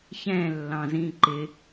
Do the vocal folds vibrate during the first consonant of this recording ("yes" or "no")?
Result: no